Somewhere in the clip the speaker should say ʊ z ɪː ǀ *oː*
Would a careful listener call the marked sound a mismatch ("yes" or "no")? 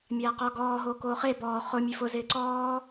yes